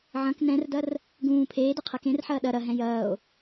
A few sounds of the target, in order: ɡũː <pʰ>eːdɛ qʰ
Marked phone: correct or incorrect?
correct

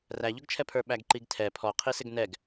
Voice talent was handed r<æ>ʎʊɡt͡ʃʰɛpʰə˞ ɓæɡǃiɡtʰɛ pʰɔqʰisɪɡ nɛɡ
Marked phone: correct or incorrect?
correct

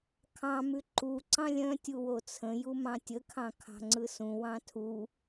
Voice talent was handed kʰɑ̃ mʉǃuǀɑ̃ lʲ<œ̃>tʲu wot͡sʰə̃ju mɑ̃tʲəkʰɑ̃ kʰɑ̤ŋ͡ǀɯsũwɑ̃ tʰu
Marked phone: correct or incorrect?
correct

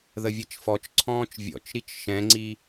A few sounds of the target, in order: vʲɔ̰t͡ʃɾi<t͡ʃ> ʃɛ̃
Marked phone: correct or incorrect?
correct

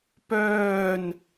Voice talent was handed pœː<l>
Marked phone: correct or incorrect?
incorrect: n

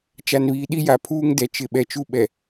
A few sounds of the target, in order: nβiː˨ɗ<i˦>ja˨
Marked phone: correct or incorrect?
correct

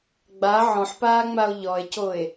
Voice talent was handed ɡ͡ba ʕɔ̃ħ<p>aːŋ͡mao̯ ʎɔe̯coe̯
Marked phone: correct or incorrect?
correct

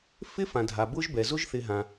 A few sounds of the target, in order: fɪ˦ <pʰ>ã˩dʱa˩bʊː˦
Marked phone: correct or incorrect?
incorrect: f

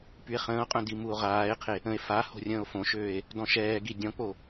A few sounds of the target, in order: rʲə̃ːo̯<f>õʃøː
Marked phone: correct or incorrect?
correct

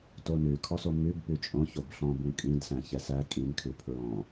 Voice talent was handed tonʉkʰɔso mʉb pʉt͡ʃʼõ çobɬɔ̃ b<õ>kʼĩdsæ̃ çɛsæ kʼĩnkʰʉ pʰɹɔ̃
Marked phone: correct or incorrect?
incorrect: ũ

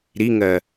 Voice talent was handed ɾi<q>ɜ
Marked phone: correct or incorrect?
incorrect: ŋ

